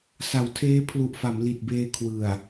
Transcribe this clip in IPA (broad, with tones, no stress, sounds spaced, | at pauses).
s a˩˦ w tʰ eː˦˥ pʰ l u˨˩ ʔ f a˩˦ m l i˨˩ t̚ b eː˧ kʰ w ɯ˨˩ a̯